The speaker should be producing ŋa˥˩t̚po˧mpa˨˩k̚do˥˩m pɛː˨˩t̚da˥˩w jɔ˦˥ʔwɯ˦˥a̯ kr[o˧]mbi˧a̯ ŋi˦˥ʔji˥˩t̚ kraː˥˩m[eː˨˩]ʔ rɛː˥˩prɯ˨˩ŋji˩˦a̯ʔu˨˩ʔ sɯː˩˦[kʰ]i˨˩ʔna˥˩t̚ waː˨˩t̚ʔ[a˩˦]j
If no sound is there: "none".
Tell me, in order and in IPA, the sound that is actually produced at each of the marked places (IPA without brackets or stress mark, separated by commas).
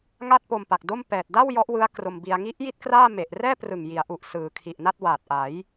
o˧, e˨˩, kʰ, a˩˦